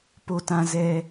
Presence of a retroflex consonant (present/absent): absent